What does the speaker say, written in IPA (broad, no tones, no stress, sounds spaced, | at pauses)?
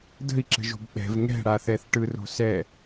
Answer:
d ə̤ i̯ ǁ ə̤ ʒ o̤ b ɓ ɛ̤ v ŋ ɛ̤ ɽ a θ ɛ θ ʈ ɯ r o̤ s ɛ